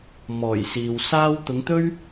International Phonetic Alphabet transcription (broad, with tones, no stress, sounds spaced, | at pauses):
m ɔː˨˩ j s iː˨ w s aː˥ w t̪ ʊ˨˧ ŋ t̪ ɵ˥ ɥ